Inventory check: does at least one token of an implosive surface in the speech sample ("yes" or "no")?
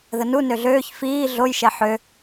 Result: no